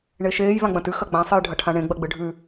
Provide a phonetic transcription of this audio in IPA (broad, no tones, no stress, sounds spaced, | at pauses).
ɳ e ʃ eː j v ã ɡ͡b ɐ̃ t ʉ x ɐ ɡ͡b ã sˤ ɨ j ɖʱ ɐ ʈʰ ã ɳ ẽ ɡ͡b ɐ ɡ͡b ɨ ɖʱ ʉ